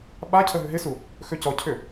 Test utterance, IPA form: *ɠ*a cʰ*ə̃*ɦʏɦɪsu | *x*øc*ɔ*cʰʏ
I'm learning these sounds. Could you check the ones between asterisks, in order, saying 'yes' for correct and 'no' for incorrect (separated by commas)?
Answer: no, no, yes, yes